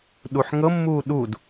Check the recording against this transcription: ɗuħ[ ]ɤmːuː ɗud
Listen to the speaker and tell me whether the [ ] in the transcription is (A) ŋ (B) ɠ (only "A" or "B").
A